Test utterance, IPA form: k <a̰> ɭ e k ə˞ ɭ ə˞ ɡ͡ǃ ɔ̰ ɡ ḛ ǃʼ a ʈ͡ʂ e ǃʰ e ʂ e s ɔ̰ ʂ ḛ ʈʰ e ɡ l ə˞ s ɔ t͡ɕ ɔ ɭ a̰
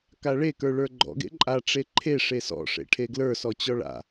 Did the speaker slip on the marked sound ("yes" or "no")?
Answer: yes